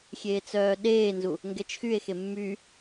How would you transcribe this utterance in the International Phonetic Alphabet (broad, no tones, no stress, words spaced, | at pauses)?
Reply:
xʲeːt͡sœːɗeːnzu | ŋɡɛt͡ʃxye̯xe mːy